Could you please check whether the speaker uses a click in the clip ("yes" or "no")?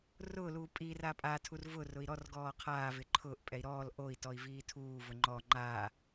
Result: yes